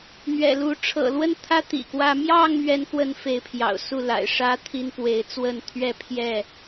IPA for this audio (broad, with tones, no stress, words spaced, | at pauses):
n̪ɥɛ̰˨˩lu˨˦ ʈ͡ʂʰɤ̰˨˩lwə˦nt̪ʰä˦ t̪ḭ˨˩kwä˦ mjɑ˥˨ŋmɥɛ˨˦nkwə˨˦n fe˨˦ɪ̯pʰjɑ̰˨˩ʊ̯ su˥˨la̰˨˩ɪ̯ ʂä˦t̪ʰi˦n pwe˨˦ɪ̯t͡swə˥˨nt̪ʰɥɛ˦pʰjɛ˥˨